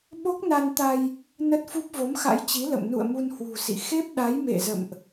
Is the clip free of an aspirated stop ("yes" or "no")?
yes